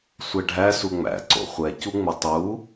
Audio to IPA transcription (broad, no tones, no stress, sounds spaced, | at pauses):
sʷ ɛ ɖʱ æ s u ŋ͡m æ̰ ǀ o̰ χʷ ɛ c u ŋ͡m ɘ tˤ u